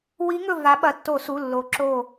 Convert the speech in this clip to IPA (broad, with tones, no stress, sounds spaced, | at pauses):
w i˨˦ ŋ ɵ˧˩ v a˨˦ ɓ ɐ˩˧˩ tː o˧˩˧ s u˩˧˩ lː o˨˦ ǁ o˧˩